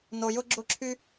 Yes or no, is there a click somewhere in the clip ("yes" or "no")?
yes